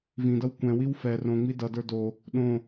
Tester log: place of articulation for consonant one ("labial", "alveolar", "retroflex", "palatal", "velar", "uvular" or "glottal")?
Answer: labial